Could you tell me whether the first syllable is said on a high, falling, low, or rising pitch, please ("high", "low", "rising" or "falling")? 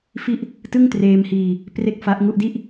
falling